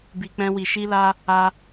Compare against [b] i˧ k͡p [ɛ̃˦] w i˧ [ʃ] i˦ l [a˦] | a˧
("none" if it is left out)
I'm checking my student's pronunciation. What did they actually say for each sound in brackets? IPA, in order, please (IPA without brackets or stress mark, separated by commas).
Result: b, ɛ̃˦, ʃ, a˦